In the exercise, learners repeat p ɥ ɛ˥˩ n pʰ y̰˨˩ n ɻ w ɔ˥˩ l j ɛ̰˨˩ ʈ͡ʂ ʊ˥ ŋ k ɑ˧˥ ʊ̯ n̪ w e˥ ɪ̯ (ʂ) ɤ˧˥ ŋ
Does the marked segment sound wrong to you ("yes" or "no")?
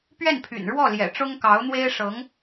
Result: no